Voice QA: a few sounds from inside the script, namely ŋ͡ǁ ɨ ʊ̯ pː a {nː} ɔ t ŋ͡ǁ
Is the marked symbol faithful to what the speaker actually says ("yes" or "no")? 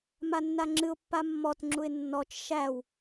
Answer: no